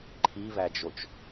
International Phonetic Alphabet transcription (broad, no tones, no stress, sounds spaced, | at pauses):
ǃʰ i β æ d͡ʒ o t͡ʃ